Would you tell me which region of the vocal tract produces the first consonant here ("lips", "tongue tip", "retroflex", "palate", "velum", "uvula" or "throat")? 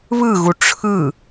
lips